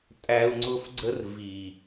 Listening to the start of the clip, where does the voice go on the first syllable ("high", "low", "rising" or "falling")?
high